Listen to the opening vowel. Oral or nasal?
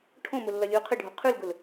nasal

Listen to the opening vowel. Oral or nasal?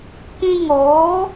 nasal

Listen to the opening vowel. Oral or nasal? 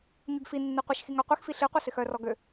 oral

